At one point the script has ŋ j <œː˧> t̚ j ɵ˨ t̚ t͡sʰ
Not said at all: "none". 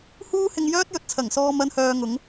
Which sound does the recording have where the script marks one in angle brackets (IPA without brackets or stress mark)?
œː˥